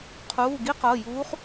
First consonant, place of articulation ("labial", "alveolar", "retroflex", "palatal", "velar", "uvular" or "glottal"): uvular